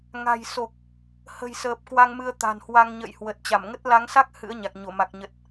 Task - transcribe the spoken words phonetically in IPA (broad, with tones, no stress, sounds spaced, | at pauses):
ŋ a̤˨˩ j s o˨˩ k̚ | h ə̤˨˩ j s əː˨˩ p̚ k w a˧ ŋ m ɨ˧ ə̯ t̪ a̤˨˩ n h w a˧ ŋ ɲ ə̰˧˨ j h w ə˨˩ t̚ t͡ɕ a˧˩ m ŋ ə˦˥ t̚ l a˨˦ ŋ s a˦˥ k̚ h ɨ̰˧˥ ə̯ ɲ a˨˩ k̚ ɲ o˧˩ m a˨˩ k̚ ɲ ə˨˩ t̚